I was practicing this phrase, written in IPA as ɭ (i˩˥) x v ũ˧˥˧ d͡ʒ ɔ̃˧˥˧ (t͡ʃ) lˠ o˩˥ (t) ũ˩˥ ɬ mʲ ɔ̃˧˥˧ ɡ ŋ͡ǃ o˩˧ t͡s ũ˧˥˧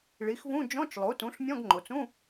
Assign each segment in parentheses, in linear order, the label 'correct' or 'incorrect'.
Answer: correct, correct, correct

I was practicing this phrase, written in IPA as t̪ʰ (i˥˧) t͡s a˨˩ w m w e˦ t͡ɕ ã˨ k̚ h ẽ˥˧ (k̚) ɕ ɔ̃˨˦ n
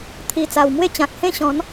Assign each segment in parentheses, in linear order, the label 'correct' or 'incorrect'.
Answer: incorrect, incorrect

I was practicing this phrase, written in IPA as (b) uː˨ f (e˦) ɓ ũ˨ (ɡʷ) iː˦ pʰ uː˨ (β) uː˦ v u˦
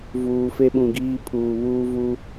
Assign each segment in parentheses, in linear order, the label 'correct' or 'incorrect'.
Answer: incorrect, correct, incorrect, correct

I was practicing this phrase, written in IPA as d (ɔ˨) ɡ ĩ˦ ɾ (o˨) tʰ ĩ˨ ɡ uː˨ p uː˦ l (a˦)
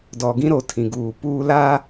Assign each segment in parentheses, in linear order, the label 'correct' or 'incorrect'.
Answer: correct, correct, correct

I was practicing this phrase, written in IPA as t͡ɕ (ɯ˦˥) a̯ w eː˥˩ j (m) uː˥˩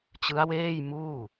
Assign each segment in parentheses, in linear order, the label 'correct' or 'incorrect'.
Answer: correct, correct

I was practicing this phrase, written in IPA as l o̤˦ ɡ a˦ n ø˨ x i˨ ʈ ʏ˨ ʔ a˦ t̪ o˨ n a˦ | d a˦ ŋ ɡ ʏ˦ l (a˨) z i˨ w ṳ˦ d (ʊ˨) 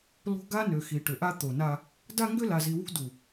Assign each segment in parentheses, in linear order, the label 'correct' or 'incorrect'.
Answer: correct, incorrect

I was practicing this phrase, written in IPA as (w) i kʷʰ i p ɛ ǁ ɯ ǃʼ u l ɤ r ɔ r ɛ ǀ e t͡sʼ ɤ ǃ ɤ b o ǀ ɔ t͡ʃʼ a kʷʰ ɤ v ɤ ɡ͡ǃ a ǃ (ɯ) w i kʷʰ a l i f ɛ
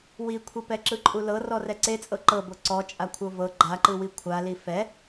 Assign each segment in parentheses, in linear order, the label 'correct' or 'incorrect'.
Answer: correct, correct

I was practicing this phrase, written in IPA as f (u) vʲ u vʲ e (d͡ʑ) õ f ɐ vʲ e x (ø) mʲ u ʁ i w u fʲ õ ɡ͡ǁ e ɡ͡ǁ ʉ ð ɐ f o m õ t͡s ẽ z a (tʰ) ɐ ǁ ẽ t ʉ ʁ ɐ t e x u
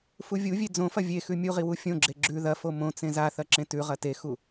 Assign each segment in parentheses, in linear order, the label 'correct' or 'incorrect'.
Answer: correct, incorrect, incorrect, incorrect

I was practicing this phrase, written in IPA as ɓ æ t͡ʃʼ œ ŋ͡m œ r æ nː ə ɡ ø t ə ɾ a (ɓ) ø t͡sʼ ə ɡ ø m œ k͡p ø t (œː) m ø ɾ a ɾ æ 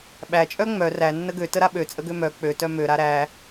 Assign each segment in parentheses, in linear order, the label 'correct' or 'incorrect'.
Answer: correct, incorrect

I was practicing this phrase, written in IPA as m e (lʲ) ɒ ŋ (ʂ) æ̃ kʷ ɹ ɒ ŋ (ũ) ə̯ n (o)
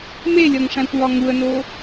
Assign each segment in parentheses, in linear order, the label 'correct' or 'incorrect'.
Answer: correct, correct, incorrect, correct

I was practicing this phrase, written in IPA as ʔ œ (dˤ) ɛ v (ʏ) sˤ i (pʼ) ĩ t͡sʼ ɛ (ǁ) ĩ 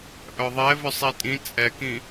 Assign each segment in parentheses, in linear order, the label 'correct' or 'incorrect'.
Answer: incorrect, correct, incorrect, incorrect

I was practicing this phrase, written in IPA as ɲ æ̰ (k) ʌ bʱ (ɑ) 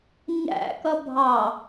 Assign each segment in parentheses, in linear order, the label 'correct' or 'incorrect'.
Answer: correct, correct

